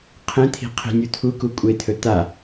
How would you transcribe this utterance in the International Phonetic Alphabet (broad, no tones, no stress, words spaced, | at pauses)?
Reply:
qʰẽt̪ʰi̤ qʰi̤nʲu t̪ʰuku kʷʼet̪ʰɵ t̪a